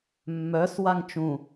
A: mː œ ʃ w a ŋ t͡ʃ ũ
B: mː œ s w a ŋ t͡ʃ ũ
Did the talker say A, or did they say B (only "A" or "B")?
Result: B